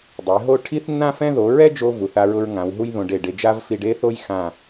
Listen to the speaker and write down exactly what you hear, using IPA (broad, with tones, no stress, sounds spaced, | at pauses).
dˤ e˩˧ ɦ o˥˧ ʈʰ i˥ θ nː ã˥ f ɛ̃˥ ð o˩˧ ɹ ɛ˥ d͡ʒ o˧ v u˩˧ θ a˧ ɹ ʊ˧ ɹ ŋ ã˩˧ w ɦ u˥ j ð õ˧ ɖ e˧˩ ɖ e˧ d͡ʒ a˥ v f i˧ ɖ e˥ θ o˥ j x ã˧˩